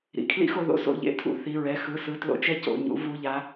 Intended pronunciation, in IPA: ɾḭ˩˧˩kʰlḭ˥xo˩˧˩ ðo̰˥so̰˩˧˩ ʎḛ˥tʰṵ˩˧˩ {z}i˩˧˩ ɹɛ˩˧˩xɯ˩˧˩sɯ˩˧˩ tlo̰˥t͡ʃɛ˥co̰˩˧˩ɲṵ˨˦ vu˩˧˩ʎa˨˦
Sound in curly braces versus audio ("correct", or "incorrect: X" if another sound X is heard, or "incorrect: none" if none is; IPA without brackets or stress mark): incorrect: θ